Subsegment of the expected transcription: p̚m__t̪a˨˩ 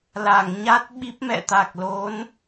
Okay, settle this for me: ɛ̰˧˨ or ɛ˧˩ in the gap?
ɛ̰˧˨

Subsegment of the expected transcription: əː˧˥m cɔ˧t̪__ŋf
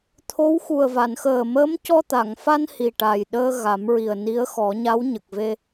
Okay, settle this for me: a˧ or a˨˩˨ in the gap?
a˨˩˨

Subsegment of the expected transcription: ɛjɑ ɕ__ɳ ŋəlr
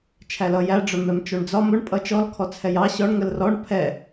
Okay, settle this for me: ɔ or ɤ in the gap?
ɔ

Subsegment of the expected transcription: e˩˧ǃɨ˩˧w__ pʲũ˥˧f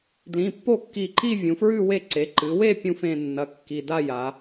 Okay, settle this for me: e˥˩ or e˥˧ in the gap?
e˥˧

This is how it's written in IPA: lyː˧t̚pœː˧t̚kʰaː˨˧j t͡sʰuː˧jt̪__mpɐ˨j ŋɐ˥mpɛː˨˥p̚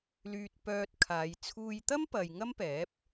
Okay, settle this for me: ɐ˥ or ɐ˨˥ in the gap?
ɐ˥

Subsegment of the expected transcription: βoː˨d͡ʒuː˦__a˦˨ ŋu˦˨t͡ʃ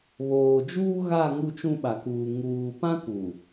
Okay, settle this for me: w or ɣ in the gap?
ɣ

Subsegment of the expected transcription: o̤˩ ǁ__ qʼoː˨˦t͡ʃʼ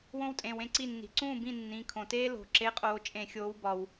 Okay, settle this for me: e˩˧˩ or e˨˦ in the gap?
e˨˦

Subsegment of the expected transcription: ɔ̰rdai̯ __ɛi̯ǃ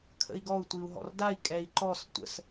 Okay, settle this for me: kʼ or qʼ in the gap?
kʼ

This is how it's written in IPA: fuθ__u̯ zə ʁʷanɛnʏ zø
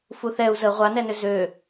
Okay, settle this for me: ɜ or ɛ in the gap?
ɛ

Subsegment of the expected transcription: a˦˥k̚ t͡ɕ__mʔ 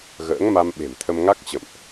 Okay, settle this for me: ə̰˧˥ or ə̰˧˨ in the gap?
ə̰˧˨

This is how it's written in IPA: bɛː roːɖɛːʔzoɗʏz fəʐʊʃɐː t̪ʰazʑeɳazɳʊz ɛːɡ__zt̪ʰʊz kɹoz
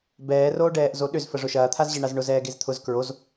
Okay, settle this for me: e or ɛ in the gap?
e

